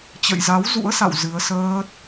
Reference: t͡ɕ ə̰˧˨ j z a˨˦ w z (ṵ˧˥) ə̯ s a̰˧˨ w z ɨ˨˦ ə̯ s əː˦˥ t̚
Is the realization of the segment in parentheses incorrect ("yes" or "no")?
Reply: no